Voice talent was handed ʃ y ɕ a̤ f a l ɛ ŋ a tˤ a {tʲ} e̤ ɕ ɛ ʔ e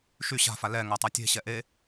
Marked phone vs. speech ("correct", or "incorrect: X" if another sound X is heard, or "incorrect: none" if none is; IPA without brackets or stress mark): correct